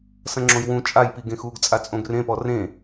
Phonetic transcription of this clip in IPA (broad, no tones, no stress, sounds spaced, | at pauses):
s ɐ̃ ŋ͡ǁ õ j w ũ t͡ʃʼ a j p i ɡ ẽ x uː ɡ t͡sʼ a t͡sʼ õ ɡ r ẽ p ɔ r ẽ